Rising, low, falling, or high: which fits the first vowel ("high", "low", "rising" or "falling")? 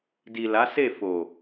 low